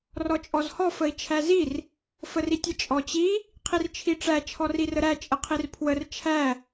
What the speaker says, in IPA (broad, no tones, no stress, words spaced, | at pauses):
rɔt͡ʃʼɔzhɔ fəi̯t͡ʃʰæzir | fəritʲə t͡ʃʼɔt͡ɕi | qʰirt͡ʃʰiʈ͡ʂæ t͡ʃʰɔrirəɾæ t͡ʃʼəqʰirpʰwər t͡ʃʰæ